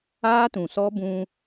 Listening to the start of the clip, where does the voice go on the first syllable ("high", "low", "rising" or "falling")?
high